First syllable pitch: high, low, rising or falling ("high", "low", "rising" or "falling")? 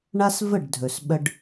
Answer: high